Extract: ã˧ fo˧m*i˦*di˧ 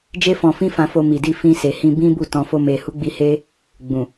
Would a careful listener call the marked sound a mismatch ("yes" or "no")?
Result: yes